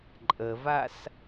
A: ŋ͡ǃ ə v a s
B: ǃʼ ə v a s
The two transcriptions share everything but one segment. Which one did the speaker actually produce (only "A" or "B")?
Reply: B